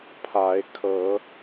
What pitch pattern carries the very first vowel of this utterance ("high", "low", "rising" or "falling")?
rising